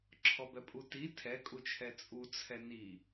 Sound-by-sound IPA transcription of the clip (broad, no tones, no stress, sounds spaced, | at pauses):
ǁʰ ɔ b ɛ pʼ u t i tʰ ɛ kʼ u t͡ʃʰ ɛ t͡sʼ u t͡sʰ ɛ n i